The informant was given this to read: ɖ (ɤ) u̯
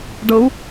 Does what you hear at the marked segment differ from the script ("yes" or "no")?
no